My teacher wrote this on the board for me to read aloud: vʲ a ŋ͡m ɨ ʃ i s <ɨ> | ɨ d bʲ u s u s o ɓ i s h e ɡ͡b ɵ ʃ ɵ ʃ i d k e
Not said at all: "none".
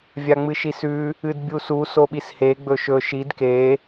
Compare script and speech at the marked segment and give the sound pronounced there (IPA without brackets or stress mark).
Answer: ʉ